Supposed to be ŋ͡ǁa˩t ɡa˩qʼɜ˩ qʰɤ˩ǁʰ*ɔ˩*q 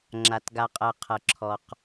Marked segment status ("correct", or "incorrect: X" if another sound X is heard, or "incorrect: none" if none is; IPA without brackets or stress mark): correct